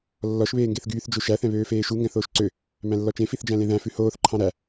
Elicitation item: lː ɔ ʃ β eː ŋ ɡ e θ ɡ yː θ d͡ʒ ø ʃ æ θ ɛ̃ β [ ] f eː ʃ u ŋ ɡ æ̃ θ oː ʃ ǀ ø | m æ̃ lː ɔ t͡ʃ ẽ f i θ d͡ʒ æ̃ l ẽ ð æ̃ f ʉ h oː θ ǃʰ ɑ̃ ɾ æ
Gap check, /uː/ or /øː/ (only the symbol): øː